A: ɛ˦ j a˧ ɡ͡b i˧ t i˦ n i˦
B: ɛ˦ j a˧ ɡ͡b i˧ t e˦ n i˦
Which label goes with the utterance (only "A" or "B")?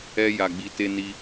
B